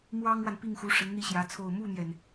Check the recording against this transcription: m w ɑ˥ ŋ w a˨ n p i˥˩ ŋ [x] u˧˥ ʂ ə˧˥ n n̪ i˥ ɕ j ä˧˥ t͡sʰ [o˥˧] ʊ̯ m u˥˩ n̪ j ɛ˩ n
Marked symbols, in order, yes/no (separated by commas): yes, yes